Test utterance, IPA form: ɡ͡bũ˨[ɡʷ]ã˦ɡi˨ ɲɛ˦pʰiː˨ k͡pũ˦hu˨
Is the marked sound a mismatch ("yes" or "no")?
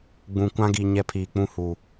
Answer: yes